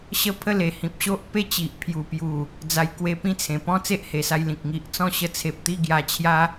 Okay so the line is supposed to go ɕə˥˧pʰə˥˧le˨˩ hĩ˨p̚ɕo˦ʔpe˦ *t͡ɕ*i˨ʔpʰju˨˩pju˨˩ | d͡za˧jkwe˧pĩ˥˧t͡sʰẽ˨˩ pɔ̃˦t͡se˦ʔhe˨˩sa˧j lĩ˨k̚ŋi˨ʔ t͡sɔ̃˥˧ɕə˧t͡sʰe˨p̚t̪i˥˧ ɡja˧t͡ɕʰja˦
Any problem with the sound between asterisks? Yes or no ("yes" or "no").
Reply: no